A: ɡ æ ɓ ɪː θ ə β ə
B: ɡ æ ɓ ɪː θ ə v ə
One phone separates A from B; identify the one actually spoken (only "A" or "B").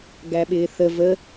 B